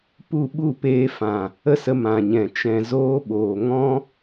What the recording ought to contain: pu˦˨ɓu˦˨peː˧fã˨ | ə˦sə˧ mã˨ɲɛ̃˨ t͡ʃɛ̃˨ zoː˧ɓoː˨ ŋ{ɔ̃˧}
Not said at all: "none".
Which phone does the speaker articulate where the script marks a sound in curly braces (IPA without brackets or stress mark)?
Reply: ɔ̃˧